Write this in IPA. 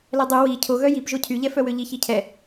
l ɛ dˤ y w i cʰ o ɣ œ j i p ʒ o cʰ y ʎ ɛ f œ w ø ʎ i ç i cʰ ɛ

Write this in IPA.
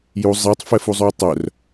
j u zˤ e tˤ f ɛ f u zˤ ʉ o̯ tˤ œ r

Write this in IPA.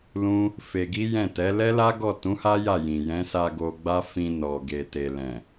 l ũ˦ | f e˧ ɡ i˦ j ɛ̃˦˨ t ɛ˨˦ l ɛ˦ l a˦ ɡ ɔ˦˨ t ũ˨˦ h a˦ j a˦˨ j ĩ˨ j ɛ̃˨˦ s a˧ ɡ o˧ ɡ͡b a˦ f ĩ˧ n ɔ˨ ɡ e˨ t e˨ l ɛ̃˨

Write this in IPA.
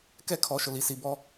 k ɛ˦ kʰ ɔ˨˦ ʃ ʊ˨ l i˨ s i˨ b ɔ˦

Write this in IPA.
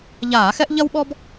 ʎ aː˧˩˧ x ɛ˥ ʔ ʎ ɐ˥ w ɓ ɔ˥ b

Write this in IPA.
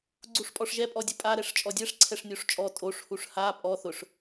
ɡ͡ǀ u ʂ pʼ ɔ ʂ ʒ ɛ pʼ ɔ dʲ ʊ pʼ a ɾ ɛ ʂ t͡ʃʼ ɔ dʲ ɛ ʂ ǀʰ ɛ ʂ nʲ o ʂ t͡ʃʼ ɔ tʼ o ʂ h u ʂ h a pʼ ɔ θ ʊ ʂ

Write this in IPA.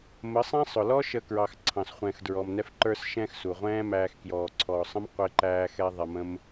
m ə˨˦ sˤ ɛ̃˦ sˤ ʊ˨ l ɔ˦ ʃ ə˧ k ɹ ɑ˨ x ǀʰ ɑ̃˨ s χʷ ɛ̃ː˨ x d ɹ ɔ˨ m n ɛ˧ f ǃ ə˞˧ s ʃ ɛ̃˧ x s u˨ ʁʷ ɛ̃ː˦ m æː˧ x k j ɔː˨ ǀʰ ɔː˨ sˤ ə̃˦ m qʷ ɪ˧ ǃ æː˧ x ɛ˧ ðˤ ɛ˧ m ə̃˦ m

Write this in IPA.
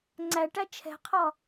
ŋ͡ǀ æ ʈ æ t͡ʃʰ ɛ̤ qʰ ɒ

